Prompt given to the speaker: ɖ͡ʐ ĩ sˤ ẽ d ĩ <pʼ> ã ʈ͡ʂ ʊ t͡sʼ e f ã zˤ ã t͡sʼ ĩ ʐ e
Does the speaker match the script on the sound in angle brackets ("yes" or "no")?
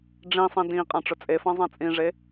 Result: no